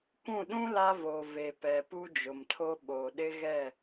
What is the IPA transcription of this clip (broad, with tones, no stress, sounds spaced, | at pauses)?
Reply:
kʷ ũ˦˨ ɗ ũ˦ l a˦ v o˨ v e˨ p ɛ˨ p u˦ d͡ʒ ʊ˨ m tʰ o˦ ɓ o˨ ɗ ɪ˦ ɣ ɛ˦˨